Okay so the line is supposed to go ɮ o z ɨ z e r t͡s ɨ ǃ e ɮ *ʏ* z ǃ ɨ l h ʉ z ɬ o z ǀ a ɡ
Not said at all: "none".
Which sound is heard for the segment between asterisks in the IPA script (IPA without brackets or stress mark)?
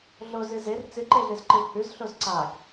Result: ɨ